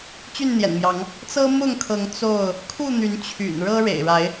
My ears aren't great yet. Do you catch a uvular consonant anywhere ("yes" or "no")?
no